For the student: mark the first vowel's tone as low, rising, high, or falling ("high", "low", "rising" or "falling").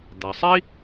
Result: low